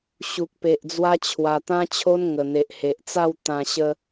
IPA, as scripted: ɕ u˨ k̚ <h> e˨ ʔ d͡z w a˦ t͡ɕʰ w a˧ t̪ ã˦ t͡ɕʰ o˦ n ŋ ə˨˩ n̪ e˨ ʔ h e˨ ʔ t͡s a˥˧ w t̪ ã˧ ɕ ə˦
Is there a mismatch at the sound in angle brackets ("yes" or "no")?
yes